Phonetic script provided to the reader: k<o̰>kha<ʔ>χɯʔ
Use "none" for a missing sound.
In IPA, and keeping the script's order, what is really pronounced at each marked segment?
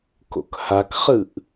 o̰, k

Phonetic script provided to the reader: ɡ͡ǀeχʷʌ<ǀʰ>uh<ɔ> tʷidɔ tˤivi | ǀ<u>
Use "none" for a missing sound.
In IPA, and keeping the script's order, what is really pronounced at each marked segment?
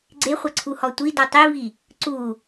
ǀʰ, ɔ, u

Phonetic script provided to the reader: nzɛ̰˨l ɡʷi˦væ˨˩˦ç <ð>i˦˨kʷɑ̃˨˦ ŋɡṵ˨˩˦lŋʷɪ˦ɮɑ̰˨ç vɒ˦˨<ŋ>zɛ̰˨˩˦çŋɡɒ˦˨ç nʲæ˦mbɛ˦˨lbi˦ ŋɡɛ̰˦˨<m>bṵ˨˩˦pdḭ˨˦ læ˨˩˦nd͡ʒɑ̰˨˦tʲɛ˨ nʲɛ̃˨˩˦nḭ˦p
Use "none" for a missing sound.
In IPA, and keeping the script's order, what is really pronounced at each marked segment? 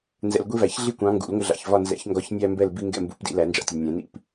ɮ, n, m

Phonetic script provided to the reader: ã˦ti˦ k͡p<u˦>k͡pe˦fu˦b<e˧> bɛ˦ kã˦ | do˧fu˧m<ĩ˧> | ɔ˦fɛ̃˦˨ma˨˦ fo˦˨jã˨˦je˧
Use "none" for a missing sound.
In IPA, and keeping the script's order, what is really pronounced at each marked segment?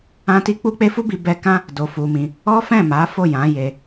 u˦, i˧, ĩ˧

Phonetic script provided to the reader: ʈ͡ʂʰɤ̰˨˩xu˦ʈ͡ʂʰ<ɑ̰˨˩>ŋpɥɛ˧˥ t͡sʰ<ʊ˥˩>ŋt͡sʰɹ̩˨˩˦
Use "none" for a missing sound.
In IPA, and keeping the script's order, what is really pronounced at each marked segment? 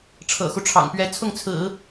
ɑ̰˨˩, ʊ˥˩

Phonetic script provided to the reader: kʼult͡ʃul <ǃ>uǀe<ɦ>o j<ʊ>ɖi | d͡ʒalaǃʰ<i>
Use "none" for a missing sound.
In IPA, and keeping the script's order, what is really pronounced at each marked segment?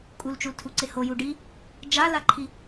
tʰ, h, u, i

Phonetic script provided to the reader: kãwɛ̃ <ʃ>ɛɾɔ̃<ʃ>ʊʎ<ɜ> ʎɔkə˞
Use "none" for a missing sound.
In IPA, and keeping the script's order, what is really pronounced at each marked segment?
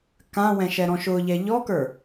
ʃ, ʃ, ɛ

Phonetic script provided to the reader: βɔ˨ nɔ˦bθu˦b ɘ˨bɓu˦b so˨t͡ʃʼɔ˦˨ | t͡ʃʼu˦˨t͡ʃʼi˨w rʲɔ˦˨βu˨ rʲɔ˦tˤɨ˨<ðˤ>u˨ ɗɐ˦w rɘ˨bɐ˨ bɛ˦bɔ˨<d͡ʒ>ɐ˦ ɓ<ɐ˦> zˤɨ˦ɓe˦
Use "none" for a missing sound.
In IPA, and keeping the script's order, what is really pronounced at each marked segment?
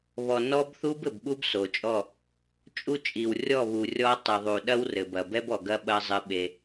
ðˤ, ɡ, ɐ˦

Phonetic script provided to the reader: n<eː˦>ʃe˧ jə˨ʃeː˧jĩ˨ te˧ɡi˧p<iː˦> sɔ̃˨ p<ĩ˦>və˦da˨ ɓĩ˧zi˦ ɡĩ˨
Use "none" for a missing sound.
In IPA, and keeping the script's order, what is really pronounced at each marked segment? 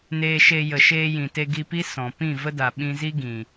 eː˧, i˦, ĩ˦˨

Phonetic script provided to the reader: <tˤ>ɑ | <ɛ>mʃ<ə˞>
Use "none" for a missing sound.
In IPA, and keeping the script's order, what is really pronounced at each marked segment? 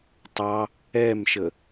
tˤ, ɛ, ə

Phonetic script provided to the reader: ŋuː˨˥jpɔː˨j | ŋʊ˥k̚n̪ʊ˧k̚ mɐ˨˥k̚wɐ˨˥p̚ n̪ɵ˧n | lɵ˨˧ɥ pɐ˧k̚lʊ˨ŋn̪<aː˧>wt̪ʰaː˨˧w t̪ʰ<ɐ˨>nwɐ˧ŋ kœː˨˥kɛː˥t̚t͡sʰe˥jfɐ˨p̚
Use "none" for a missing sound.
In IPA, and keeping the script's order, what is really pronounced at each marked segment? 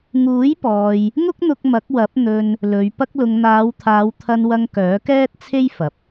aː˨˧, ɐ˧

